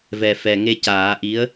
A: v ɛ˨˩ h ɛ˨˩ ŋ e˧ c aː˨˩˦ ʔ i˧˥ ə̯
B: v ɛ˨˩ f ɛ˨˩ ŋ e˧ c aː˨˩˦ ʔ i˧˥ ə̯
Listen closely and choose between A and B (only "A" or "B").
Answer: B